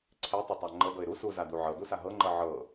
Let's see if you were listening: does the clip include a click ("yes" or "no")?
yes